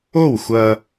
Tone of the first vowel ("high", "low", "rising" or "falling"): falling